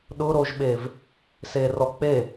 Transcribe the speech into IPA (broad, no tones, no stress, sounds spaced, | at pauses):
ɗ ʊ ɾ o ʒ ɓ e v | s e r ɔ k͡p e